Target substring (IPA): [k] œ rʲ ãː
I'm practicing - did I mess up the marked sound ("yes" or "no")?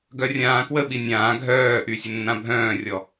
yes